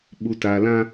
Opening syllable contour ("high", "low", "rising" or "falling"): low